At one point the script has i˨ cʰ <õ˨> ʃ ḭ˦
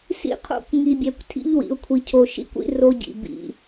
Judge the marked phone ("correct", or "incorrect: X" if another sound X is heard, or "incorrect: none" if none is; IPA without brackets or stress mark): incorrect: o˨